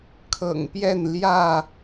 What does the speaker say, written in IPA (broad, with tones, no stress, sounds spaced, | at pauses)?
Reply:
kʰ ɤ̰˨˩ ŋ p j ɛ˥˨ n l j ä˥˨